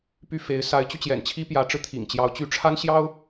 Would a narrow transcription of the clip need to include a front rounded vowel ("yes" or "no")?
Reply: yes